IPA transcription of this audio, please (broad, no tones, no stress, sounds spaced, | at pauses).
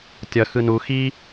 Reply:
tʲ ʌ x ɯ n u x i